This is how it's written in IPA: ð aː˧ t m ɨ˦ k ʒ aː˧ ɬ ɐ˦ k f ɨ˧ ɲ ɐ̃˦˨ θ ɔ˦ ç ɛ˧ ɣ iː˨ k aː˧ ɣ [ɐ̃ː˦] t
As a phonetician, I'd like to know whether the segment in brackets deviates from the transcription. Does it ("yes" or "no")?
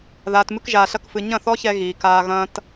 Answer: no